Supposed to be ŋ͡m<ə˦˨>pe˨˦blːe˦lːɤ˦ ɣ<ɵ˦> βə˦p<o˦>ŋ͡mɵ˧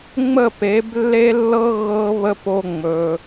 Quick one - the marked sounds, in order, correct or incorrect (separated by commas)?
correct, incorrect, correct